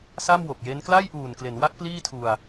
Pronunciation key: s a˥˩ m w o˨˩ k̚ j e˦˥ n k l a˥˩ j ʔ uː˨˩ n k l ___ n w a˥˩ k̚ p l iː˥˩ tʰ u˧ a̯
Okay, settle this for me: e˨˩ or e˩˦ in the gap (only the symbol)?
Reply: e˩˦